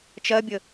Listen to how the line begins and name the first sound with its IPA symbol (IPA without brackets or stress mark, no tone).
t͡ʃ